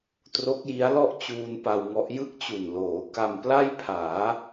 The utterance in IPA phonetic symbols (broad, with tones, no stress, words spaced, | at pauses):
tro˦˥k̚ji˦˥a̯lɔ˥˩ʔ t͡ɕuː˧n pa˧wŋɔ˦˥ʔ jɯ˥˩k̚t͡ɕu˨˩nloː˩˦ ka˧mpla˥˩jpʰaː˩˦